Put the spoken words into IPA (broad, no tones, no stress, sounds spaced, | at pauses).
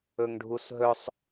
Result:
ɵ ŋ ɖʱ u s ɦ ɵ sˤ